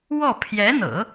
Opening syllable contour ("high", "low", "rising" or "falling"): falling